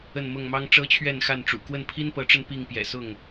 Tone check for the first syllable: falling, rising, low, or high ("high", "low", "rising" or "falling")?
falling